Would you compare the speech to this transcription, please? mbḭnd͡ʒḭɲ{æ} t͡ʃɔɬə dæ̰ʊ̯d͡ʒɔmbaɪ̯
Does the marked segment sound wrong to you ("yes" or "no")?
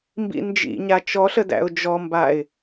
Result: yes